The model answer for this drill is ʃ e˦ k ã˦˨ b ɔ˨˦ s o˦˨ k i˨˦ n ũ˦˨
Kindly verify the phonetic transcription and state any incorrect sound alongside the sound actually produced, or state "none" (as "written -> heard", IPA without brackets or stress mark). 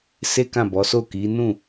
ʃ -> s